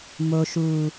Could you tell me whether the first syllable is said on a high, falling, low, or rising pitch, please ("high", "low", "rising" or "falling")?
low